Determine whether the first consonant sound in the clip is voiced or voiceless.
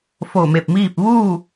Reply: voiceless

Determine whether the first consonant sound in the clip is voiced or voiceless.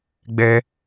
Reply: voiced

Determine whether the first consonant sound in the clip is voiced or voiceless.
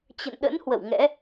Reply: voiceless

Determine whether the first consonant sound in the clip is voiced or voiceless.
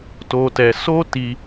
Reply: voiceless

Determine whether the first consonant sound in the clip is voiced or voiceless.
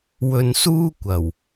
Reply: voiced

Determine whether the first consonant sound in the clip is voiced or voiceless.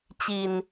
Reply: voiceless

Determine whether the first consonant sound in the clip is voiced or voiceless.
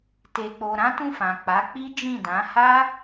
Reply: voiceless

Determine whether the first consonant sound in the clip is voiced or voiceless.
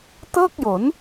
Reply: voiceless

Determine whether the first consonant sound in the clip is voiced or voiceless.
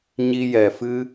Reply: voiced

